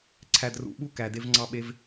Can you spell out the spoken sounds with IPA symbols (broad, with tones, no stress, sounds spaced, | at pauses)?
ǀʰ æ˨ d r ṵ˨ ɓ u˦ k æ˨ d e˦ v ŋ͡ǀ ɑ˦ ɓ e˦ v